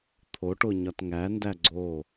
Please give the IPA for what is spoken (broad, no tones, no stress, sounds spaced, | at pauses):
t̪ʰ o ʈ o ɲ ɒ t ŋ æ n d æ ɡ͡ǀ o